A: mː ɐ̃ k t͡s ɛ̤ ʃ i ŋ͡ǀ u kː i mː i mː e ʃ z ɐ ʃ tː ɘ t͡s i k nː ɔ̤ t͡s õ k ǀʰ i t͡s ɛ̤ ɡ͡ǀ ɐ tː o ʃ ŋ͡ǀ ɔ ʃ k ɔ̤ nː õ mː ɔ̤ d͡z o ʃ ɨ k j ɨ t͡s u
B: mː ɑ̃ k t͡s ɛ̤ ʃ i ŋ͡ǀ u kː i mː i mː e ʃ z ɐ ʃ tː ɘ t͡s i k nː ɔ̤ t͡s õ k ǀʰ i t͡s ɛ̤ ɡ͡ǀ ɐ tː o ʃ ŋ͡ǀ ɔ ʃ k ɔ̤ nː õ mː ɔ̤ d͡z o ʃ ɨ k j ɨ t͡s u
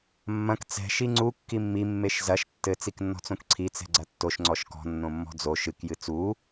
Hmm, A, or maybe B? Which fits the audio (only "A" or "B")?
A